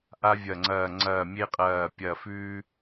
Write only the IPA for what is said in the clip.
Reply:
ʔ a˧ vʲ ɐ˨˩ ŋ͡ǀ ɐː˨˩ ŋ͡ǀ ɐː˨˩ mʲ e˧ qʼ ɐː˨˩ pʲ ɐ˨˩ f ʉː˧

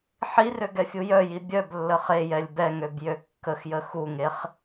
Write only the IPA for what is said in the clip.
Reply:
ħ i r ø ɡ ɛ fʲ u j œ j i bʲ œ b lː ə χ e j ɛ lʲ b ɛ ŋ ø b j ø kː ə x j ə x u ŋ e χ

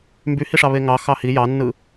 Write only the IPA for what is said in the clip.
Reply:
m b y h i ʂ ɑ β e ŋ ɑ x ɑ h i j ɑ nː ɯ

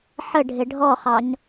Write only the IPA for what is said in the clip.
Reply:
ħ ə ɖʱ ɪ ɖʱ ɔ χ ɑ ɲ

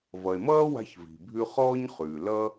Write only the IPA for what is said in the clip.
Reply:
v ʌ˩ e̯ m ʌː˥ w a̤˧ ç v i̤˩ bʱ ʉ˧ χ ɔː˥ ɲ χ ʉː˩ l ʌ˥

